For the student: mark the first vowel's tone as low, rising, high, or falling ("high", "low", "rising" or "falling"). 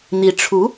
rising